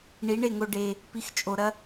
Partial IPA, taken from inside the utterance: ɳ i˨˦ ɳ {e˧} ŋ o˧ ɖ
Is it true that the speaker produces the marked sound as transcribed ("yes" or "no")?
no